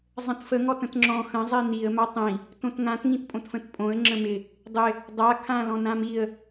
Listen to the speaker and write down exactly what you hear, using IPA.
zˤə̃tfə ŋɔtə̃tŋ͡ǁɔ̃ xə̃ zˤiniə̯ matˤĩ | tõtŋãt ŋĩtpʼõtfə̃tpʼõə̯ ŋ͡ǁə̃mɪ | dˤɪ | dˤa kʰãlɔ̃nãmiə̯

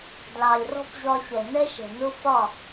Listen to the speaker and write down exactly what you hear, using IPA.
dlɑ˨lʲrɔ̤˦pʑɒ˧ɕɛ˨ nɛ˦ʃɛ̤˨ nʊ˦ fɒ˦˨

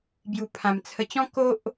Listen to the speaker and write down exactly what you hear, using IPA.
bju˨˩pʰã˨˩m t͡sʰə˨˩t͡ɕɔ̃˦ ko˦ʔ

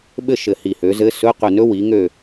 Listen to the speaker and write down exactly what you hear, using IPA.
ɓɘ˦˨ʃɘ˨˩hi˨˩ hø˨˦zɘ˧˥˧ sɵ˧˥˧qø˦˨nɵ˦˥ wi˨˦ŋø˦˨

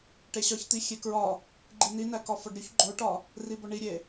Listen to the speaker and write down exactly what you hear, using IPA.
ʈeɕɒçt̪i xʲekɹɒ | ɡ͡ǃininækɒ fɒɖɾʲuç ɡ͡ǃoʈɒ | ribɒɳiɾʲe

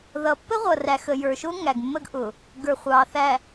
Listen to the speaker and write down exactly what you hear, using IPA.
ðʌ˨pːə˦ʁʷʌ˨ræ˨x ə˨jə˞˨ʃʊ˦ ŋæ˨ɡmːə˦ɡʔʊ˨ | ɡə˞˨χʷɑː˨θæ˨

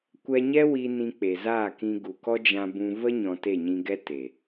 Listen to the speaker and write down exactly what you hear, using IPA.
kʷɛ˧ɲɛ˦wi˧ nĩ˧k͡pe˨zaː˦˨kĩ˧ ɡu˨kɔ˦d͡ʒã˧bũ˧ və˦ ɲɔ̃˧te˦˨ɲĩ˧ɡɛ˦ te˨

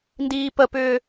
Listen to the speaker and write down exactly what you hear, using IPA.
ndiːpəpʏː

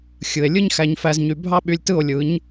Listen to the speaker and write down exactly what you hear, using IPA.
xʲɯ˨e̯ lʲɯ˦ɲxæ˧ɲ fæ˦zɲy˧ bʱɑ˦ɓy˧lʲtɯ˦˨o̯lʲɯ˨˦ɲ

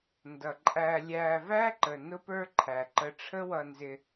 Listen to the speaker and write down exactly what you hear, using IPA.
ndʌ˨ǃʼæ˧lʲæ˧ væ˦ǃə˨ nʊ˦pə˞˦ǃʰæ˨ǃə˧ ʈ͡ʂʰə˦wʌ˧nzɪ˧

